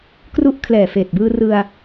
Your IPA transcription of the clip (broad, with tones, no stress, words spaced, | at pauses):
kru˥˩ʔ kʰlɛː˨˩feː˨˩t̚bɯː˧ rɯ˧a̯